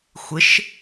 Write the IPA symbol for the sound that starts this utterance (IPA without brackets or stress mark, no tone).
xʷ